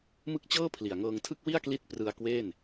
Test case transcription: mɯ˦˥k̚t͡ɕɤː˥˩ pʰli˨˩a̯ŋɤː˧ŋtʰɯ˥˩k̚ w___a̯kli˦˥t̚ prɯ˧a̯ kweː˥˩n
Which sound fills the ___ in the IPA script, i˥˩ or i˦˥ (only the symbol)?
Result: i˥˩